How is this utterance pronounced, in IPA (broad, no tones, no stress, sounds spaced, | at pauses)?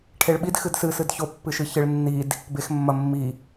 ʈʰ e ɭ ɓ i d x ɨ d s ɨ s ɨ d ç o pː ɨ ʃ ɨ ç ɨ ɭ nː i d | b e x mː ɐ mː i